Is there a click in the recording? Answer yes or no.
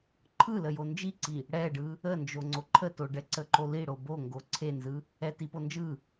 yes